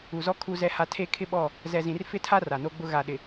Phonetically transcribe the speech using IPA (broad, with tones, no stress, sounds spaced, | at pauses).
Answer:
u˨ z ɔ˦ kʰ u˦ z ɛ˦ h a˦ tʰ e˦ kʰ ɪ˦ ɓ ɔ˦˨ | z ɛ˨ z ĩ˨ r f ɪ˦ tʰ a˦ r a˨ n o˦ ɡ͡b ʊ˦ ɣ a˨ ɗ ɪ˨